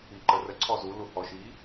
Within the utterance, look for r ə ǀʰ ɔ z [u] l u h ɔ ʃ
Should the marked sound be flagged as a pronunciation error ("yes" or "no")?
no